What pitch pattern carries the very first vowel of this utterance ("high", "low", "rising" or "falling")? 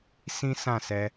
high